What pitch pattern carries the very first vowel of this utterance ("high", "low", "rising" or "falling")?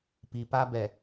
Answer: low